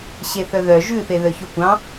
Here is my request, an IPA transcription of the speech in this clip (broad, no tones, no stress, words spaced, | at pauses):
ɕeθœðœ ʒʉθe ðœçokʷɑ̃